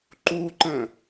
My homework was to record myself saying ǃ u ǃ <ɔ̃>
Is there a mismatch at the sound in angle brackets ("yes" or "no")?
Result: yes